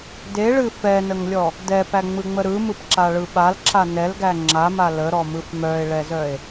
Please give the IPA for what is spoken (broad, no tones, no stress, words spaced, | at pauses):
deɭɨ fɛnəŋlʲɔ | dɛpæŋ͡mɯŋ͡mə ɾɯmɯpǁaɭɯ ɓalǁa nɛlɡæ ŋ͡ǁama ləɾɔmɯf mœe̯ɭɛzœe̯